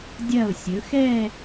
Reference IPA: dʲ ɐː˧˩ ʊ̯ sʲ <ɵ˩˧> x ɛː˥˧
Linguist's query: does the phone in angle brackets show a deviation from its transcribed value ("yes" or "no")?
no